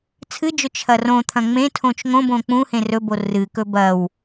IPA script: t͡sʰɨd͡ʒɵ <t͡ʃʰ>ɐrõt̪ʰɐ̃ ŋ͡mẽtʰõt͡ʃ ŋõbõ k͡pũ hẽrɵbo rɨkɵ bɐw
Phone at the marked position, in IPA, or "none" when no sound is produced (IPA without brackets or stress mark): t͡ʃʰ